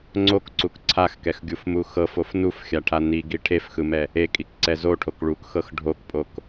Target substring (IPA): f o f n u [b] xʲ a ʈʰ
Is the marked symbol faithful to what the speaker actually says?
no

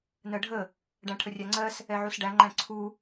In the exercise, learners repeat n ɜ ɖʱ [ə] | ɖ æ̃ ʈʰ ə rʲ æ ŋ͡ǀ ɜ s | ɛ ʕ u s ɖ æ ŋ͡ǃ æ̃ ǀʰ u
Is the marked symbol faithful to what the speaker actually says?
yes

